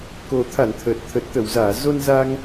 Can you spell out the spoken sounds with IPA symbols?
k o˨˩ t̪ʰ a˧˩ n t̪ʰ ə˨˩ t̚ t̪ʰ ə˨˩ t̚ t̪ ə˧˩ w z aː˧˩ z o˧ n z a˧ ŋ

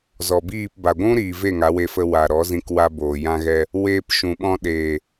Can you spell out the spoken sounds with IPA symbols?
z ɔ˨ b iː˦˨ p b a˨ ɡʷ ũ˦ ɾ iː˨ v e˦˨ ŋ a˨˦ w e˧ f ə˧ w a˨ ɾ ɔ˨˦ z ĩ˧ k w a˧ b oː˨ j ã˧ ɣ ɛ˧ | w eː˧ p ʃ ũ˨ ɓ ɔ̃˧ ɗ eː˨

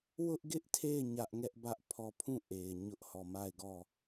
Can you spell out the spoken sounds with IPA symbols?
w ʊ˦ ʔ ɡ ɪ˦ ʔ tʰ e˦˨ ɪ̯ ɲ ä˦ ʔ ŋ ɛ˦ ʔ b ä˦ ʔ pʰ ɔ˦˨ pʰ ũ˦˨ ʔ e˨ ɪ̯ ɲ ʊ˦ ʔ h ɔ˦˨ m a˦˨ ɪ̯ ɡ ɔ˦˨

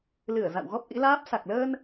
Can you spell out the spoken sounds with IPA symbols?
l ɨ˧˩ ə̯ z a̰˧˨ w ɣ ɔ˦˥ p̚ ʔ ḭ˧˥ l aː˦˥ p̚ s a˨˩ k̚ l əː˧ n

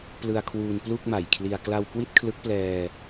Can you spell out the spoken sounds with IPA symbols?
p l ɯ˧ a̯ kʰ w uː˧ n p l u˥˩ k̚ m a˨˩ j kʰ l i˧ a̯ k l a˧ w k w i˥˩ t̚ kʰ l ɯ˦˥ k̚ p l ɛː˧

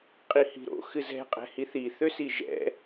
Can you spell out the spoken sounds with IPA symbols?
qʼ i h i̤ ɾ o̰ x ɨ z ɛ̤ qʼ ɛ̤ h i θ i θ ø s i ʒ ɛ̰

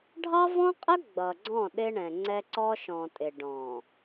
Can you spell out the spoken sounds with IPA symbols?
ɖʱ ɑ˦ v ɔ̃˦ qʼ ə˦ ɡ͡b ʌ˨ ɡ͡ǀ ɔ̃˦˨ ɗ ɪ˦ ɳ ɛ̃˨ ŋ͡ǀ ɛ˦ ǀ ɔ˦ ʃ ɔ̃˨ tʼ ɪ˨ ɖ ɔ̃˨

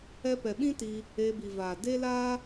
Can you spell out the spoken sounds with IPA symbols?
ɛ˦ p ɛ˨ ɓ ĩ˦ t i˧ | e˧ b i˨ v aː˨ d e˦ l aː˦

